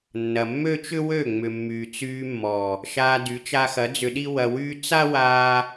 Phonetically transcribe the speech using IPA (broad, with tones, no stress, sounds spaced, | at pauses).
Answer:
nː ɐ˨ mː ø˦ t͡ʃ ʏ˦ w ø˦˨ ŋ͡m ʏ˨ mː yː˨ t͡s yː˧ mː ɔ˨ | ʃ aː˧ d y˨˦ t͡ʃ a˧ x ɐ˨˦ d͡z ʏ˧ ɗ i˦ w ɐ˧ w yː˦ t͡s a˦ w aː˧